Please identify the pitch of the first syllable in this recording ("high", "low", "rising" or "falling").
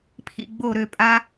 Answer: falling